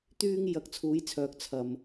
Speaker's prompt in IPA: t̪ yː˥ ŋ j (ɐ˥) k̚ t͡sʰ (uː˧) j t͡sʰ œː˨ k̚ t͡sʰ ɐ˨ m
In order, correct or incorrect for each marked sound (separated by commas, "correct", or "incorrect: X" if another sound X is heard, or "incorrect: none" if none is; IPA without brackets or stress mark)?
incorrect: ɐ˧, incorrect: uː˨˥